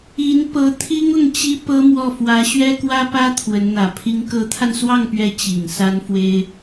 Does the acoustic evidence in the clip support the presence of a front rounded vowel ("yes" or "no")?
no